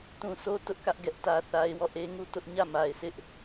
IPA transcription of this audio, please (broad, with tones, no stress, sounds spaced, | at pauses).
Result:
t ũ˨ sʰ o˦ t ʊ˦ ʔ k ä˦ ʔ ɡ ɛ˦ ʔ t ä˦ θ a˦ ɪ̯ w ɔ˦˨ ʔ e˦ ŋ u˦˨ t ʊ˦ ʔ ɲ ä˦˨ m a˨ ɪ̯ sʰ ɪ˦ ʔ